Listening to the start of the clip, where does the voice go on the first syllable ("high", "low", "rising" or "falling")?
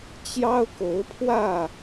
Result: high